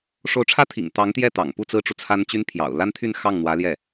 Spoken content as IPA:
ʂo˧˥ʊ̯ʈ͡ʂʰä˥ t̪ʰḭ˨˩ŋ t̪ɑ˧˥ŋt̪jɛ˥˩ t̪ɑ̰˨˩ŋpu˥˩ t͡sɹ̩˥ʈ͡ʂu˨t͡sʰa˥n t͡ɕy˥npʰjɑ̰˨˩ʊ̯ la˥nt̪ʰy˥˧n xɑ˥˩ŋn̪wä˧˥ ljɛ˥˩

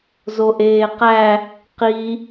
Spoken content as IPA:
zoʔeːqæ | qi

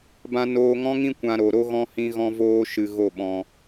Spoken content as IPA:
bã˧noː˧ŋɔ̃˦ŋĩ˦ kʷã˧ɾo˨ɾo˦ɣɔ̃˦ hĩ˦ɣɔ̃˦ voː˦ʃɨ˧ ɣo˦˨ɓɔ̃˧

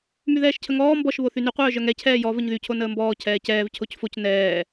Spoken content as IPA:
myðɛːʃcʰəŋɔː mbɔʃ βoθyny qʷœːʒœŋɛ cʰɛːjɔ vəɲðy cʰonəːmbɔː cʰɛːcɛːv cʰocfoc nɛː

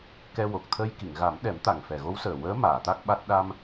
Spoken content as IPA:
kɛ˧wo˨˩k̚ t̪ʰə˧j ki˨˩˨ŋɣa˨˩˦mɗɛ˨˩˦mt̪a˨˩ŋ fɛ˨˩ɣo˧˥wsəː˨˩ wəː˧˥maː˨˩˨ t̪a˦˥k̚ɓa˦˥t̚ ɗa˧m

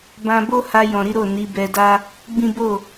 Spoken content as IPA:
bã˧bo˦ ha˧jɔ̃˨ɾi˨˦ ɾo˦˨ni˨˦ bɛ˧da˦ | ɡ͡bĩ˦ bo˦˨

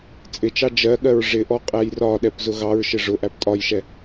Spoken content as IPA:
t͡sʼɪt͡ʃɑ d͡ʒɜɠɜɹ ʐɪʔɔ qʼæjrɒɗɛp zʊɣɑɹʃɪ ʐʊʔæp tʼɒjʃɛ

